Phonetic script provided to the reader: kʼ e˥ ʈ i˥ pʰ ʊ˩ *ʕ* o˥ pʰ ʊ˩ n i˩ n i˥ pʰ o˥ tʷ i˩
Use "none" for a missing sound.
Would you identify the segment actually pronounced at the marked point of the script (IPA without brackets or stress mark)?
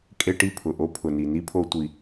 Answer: ʔ